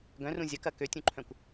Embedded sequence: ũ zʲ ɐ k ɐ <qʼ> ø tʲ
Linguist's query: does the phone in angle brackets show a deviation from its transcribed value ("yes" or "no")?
yes